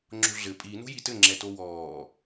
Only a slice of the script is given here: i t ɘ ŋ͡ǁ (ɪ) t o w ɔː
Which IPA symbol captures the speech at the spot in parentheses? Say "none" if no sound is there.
ɛ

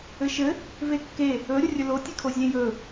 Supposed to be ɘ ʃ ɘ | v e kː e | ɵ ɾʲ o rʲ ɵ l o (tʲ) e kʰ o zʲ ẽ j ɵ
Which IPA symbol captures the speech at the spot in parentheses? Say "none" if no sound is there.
tʲ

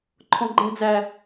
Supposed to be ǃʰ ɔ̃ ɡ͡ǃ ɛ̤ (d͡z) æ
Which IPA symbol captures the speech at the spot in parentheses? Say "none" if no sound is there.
d͡z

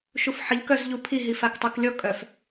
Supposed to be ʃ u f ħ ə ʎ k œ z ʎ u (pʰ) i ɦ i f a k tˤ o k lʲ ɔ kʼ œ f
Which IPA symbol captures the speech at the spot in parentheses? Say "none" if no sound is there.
pʰ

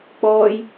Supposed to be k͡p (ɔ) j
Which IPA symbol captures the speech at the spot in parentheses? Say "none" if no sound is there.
ɔː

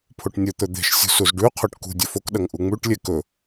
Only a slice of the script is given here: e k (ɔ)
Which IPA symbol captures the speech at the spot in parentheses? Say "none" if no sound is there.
ɵ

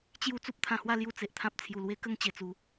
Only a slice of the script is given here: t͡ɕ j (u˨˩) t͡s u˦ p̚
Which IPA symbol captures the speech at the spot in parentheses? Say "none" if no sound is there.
u˥˧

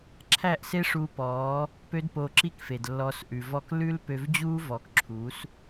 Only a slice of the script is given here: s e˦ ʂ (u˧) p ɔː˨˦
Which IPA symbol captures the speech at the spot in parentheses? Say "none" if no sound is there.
u˧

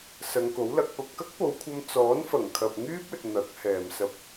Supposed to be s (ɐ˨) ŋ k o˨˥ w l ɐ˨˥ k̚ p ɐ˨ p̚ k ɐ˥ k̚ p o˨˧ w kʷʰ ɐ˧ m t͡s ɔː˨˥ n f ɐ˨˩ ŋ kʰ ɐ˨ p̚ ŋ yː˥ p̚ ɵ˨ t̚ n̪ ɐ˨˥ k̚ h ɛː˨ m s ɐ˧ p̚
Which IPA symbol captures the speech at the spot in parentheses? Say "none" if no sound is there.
ɐ˨˧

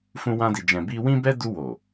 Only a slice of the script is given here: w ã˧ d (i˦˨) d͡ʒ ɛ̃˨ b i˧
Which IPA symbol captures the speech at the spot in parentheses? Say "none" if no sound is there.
i˨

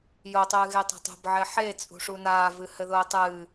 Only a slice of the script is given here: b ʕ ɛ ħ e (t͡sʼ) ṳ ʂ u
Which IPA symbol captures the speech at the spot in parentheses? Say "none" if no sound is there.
t͡sʼ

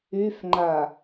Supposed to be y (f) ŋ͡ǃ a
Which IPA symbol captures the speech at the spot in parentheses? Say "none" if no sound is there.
f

